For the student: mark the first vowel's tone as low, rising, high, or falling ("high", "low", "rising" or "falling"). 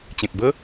low